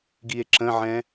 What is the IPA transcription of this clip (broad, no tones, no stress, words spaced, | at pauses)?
ɡie̯ǁə̃ʕɛ̃